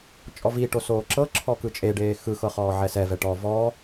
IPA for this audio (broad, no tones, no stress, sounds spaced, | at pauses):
t͡ʃʼ ɔ v i ʈ o s oː ǁ ɤ ǁʰ ɔ k ɯ t͡ʃʼ e ɖ eː x ɯ x ɤ χ ɔː ʕ ɛ s ɛ v ɛ ʈ ɔ v ɔ